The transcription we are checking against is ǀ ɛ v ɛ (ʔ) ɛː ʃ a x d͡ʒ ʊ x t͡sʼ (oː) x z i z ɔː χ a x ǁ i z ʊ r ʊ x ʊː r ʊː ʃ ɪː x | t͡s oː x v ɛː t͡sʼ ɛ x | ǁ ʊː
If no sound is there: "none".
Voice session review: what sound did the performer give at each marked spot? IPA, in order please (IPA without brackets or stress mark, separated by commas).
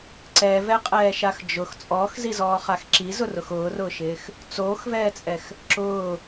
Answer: qʼ, ɔː